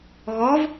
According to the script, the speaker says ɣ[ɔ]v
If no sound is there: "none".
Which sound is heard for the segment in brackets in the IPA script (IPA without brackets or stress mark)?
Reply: ɔ